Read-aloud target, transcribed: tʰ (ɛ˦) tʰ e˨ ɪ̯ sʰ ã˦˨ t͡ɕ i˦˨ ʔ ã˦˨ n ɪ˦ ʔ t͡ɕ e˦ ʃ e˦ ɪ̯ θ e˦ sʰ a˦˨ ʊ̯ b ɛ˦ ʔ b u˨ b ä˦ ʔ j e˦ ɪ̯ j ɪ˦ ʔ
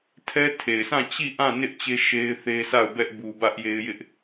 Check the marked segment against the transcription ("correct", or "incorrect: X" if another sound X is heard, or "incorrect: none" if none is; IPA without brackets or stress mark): correct